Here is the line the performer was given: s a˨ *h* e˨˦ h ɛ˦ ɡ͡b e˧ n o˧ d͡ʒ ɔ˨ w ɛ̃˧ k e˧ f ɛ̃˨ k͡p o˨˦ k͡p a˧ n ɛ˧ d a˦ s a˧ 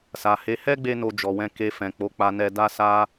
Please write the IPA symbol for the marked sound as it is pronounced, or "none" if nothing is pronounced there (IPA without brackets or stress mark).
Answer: h